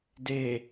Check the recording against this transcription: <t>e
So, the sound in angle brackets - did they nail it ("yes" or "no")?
no